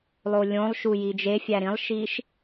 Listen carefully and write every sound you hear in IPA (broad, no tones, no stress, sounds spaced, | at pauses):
lˠ o lʲ õ lˠ ʃ u j i d͡ʒ e fʲ æ ɾ ĩ lˠ ʃ i ʃ